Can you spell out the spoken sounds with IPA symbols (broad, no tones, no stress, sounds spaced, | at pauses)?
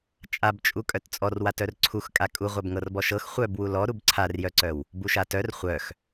t͡ʃʼ a b t͡ʃʼ u kʼ œ t t͡sʼ ɔ r w a t œ r ǀʰ u x kʼ a kʼ u ʁʷ œ b ŋ ɤ r b ɔ ʃ ɤ x χʷ œ b w u l ɔ ɾ u b ǀʰ a r j œ ǀ œ w | b u ʃ a t œ r χʷ œ x